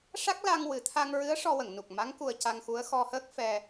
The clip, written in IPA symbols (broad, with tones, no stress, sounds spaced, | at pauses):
ʂ a˦˥ k̚ l a˧ ŋ w ɨ˨˩ t̪ʰ a˧ ŋ ɹ ɨ˧˥ ə̯ ʂ ɔ˧ w ə˨˩˨ ŋ n u˨˩ k̚ m a˧˥ ŋ k u˧ ə̯ c a˧ ŋ x u˧˥ ə̯ x ɔ˧ h əː˦˥ k̚ f ɛ˧